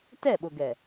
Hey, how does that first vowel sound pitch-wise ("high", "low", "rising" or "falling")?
falling